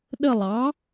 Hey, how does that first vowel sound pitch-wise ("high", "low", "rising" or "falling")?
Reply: falling